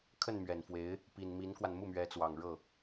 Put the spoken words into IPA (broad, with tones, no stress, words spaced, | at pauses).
kʰə˥˩n mɥɛ˨˩nfwe˧˥ɪ̯ | pi˨˩n mi˧˥nkwa˧n mu˥˩mɥɛ˧˥t͡swɑ˨˩ŋ ɻɤ˥˩